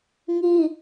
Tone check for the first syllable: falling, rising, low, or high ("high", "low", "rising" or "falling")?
high